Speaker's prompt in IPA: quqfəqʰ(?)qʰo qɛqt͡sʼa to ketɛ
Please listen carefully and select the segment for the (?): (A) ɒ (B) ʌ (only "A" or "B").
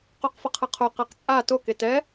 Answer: B